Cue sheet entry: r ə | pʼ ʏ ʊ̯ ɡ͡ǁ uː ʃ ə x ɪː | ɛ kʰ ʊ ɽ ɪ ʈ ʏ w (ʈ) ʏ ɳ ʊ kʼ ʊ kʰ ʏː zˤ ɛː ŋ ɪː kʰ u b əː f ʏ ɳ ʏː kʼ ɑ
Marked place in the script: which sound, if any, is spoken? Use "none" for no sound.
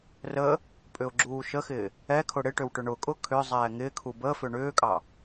ʈ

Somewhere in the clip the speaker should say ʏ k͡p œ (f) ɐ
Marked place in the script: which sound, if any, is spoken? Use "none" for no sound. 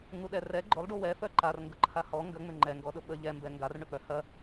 h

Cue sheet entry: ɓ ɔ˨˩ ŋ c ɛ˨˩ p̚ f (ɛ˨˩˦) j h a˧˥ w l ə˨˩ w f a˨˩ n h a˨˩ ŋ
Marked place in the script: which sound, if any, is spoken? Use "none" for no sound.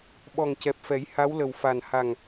ɛ˨˩˦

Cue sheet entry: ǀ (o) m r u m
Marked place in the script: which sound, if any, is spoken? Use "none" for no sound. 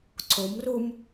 o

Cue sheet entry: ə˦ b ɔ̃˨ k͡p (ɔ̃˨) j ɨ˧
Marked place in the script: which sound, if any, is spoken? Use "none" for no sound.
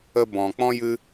ɔ̃˦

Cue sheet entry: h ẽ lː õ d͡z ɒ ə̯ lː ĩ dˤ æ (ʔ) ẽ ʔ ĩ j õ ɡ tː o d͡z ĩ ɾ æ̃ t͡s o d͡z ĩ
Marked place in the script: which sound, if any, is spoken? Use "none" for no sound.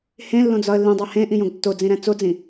h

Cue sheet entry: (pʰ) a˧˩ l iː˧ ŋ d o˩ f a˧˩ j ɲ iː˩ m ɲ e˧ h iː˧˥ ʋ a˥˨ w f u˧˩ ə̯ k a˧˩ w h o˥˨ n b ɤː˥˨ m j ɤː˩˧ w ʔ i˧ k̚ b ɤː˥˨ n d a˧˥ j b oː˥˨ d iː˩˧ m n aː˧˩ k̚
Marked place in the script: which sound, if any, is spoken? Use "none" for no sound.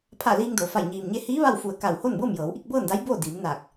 pʰ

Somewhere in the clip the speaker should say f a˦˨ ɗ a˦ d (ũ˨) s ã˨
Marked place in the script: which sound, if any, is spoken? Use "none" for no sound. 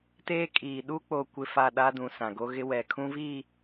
ũ˨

